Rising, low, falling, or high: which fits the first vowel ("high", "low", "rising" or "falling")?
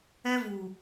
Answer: high